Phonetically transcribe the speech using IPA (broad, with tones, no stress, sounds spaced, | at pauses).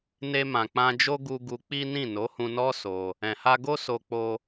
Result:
n e˧ m ã˨ k͡p ã˧ d͡ʒ o˦ ɡ u˧ ɡ u˧ k͡p i˦ n ĩ˦˨ n o˨˦ h ũ˧ n ɔ˦ s o˧ | ɛ̃˨ h a˧ ɡ o˦ s o˧ k͡p o˧